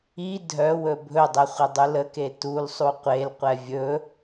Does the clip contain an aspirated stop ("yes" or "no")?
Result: no